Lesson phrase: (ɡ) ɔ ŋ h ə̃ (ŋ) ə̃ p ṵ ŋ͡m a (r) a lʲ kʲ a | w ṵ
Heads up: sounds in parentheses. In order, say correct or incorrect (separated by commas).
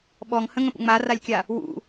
incorrect, correct, correct